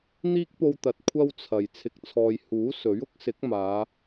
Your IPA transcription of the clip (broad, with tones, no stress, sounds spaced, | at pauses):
n̪ iː˥ k̚ p o˧ w t̪ ɐ˨ t̚ kʷʰ ɐ˥ w t͡sʰ ɐ˨ j t͡sʰ ɪ˧ k̚ t͡sʰ ɔː˧ j h uː˨˥ s ɵ˨˥ ɥ ʊ˥ k̚ s ɪ˨˥ k̚ m aː˨˧